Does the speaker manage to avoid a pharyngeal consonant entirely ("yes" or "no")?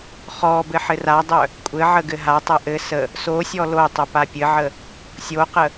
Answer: no